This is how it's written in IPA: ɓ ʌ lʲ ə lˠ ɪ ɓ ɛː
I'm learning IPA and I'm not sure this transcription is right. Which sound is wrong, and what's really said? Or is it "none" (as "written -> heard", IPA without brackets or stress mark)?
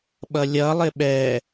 ə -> ʌ